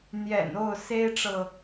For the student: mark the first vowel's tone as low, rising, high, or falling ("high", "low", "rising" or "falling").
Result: low